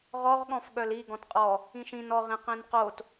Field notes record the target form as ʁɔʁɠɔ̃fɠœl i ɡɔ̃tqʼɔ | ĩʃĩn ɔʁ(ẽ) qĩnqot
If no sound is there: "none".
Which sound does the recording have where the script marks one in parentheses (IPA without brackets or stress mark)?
ĩ